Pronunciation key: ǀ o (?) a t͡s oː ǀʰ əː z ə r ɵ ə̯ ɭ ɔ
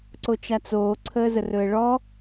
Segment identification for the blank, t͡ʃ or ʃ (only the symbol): t͡ʃ